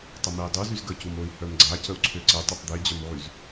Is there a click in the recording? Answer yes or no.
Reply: yes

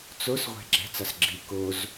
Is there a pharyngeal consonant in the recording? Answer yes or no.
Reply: no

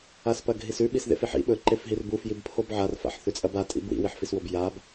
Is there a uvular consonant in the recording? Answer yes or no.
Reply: no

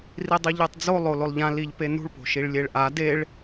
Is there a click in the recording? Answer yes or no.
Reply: no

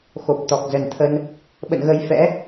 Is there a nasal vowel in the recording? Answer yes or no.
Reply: no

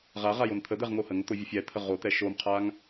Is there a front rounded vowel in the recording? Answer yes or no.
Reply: no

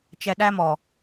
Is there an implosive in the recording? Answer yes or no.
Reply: yes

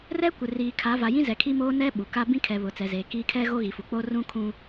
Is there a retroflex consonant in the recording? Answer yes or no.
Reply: no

